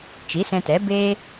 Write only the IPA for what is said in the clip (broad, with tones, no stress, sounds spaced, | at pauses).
t͡ʃ i˨˦ s ɛ̃˧ t ɛ˨˦ b eː˦